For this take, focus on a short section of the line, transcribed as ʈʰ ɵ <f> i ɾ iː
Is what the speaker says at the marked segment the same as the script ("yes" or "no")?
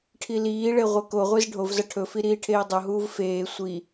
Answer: yes